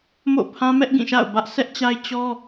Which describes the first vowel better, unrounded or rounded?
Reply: rounded